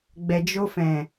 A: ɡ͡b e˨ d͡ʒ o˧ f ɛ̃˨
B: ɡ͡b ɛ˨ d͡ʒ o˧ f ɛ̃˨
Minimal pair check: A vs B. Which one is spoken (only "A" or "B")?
B